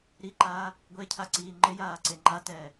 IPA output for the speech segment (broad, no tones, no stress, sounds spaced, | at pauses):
ɾ i ǃ aː | ɡʷ e cʰ a ǀ iː ŋ͡ǃ ɪ j aː ǀ e ŋ͡ǃ a t ɛː